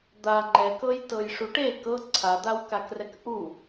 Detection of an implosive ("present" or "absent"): absent